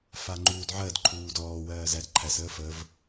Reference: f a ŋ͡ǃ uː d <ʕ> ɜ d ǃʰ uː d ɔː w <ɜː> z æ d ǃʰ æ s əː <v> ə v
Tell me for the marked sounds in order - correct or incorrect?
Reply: correct, correct, incorrect: f

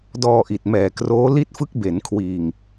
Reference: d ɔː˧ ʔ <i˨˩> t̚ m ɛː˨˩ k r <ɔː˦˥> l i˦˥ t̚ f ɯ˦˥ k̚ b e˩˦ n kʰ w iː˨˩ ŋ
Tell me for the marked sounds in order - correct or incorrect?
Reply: correct, incorrect: oː˦˥

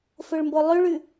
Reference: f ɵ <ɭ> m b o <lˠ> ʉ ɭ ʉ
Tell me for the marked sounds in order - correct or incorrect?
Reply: correct, correct

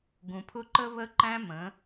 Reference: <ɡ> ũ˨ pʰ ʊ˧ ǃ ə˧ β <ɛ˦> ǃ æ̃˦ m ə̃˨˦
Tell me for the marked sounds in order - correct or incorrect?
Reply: correct, incorrect: ə˦

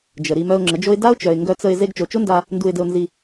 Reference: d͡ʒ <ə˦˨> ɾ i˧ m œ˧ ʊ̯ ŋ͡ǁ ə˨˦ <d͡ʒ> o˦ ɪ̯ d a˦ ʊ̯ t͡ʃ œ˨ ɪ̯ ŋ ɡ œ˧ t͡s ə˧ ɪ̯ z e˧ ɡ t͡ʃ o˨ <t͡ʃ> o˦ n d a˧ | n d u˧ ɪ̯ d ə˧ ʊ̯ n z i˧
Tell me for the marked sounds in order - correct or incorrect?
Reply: incorrect: ə˨, correct, correct

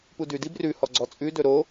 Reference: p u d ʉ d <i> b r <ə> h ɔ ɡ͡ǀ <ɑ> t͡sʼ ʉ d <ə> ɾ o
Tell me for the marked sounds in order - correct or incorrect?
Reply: correct, incorrect: ʉ, incorrect: ɔ, incorrect: ɵ

